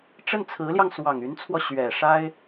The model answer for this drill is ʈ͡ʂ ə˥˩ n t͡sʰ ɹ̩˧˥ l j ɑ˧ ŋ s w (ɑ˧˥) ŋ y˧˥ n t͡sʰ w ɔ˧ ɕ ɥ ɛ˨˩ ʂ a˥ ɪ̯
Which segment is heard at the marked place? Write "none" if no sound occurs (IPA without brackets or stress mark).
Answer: ɑ˨˩